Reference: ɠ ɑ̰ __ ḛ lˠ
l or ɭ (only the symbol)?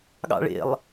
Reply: ɭ